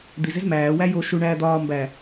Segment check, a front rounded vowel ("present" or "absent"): absent